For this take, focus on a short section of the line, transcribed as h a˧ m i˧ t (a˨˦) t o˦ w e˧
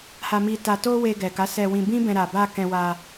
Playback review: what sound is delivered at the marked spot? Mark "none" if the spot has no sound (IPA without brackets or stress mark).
a˧